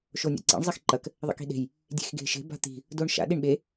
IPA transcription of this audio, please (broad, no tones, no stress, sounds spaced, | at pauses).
ʃ o nʲ a̰ ǀ ḭ ɳ zˤ i x ǃ ɐ k | ðˤ ḭ k i̤ ɗ e̤ j | dʲ e̤ x ɡ e̤ ʃ e̤ b a̤ t̪ i̤ | d o ɳ ʃ a̰ ɗ i ɳ ɓ e